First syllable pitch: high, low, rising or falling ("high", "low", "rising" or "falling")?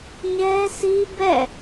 high